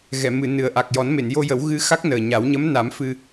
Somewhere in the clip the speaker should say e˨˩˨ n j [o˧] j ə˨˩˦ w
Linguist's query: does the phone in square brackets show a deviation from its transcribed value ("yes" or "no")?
no